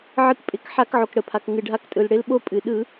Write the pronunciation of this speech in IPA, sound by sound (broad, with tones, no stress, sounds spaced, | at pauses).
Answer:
ʕ ɨ˨˥ k pʼ ɪ˧˩˧ k ħ a˧˩˧ k ʕ o˩ k ɽ ə˩ pʰ a˩ k ŋ ɨ˩ ɖʱ a˨˥ k tʼ ɯ˩ l ɽ ɪ˨˥ l ɓ o˦ pʼ ɨ˩ ɗ ɯ˧˩˧